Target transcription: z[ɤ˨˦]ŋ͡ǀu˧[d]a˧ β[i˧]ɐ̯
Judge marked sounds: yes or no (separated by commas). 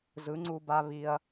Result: no, no, yes